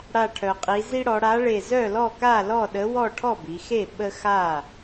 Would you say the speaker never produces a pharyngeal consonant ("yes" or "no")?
yes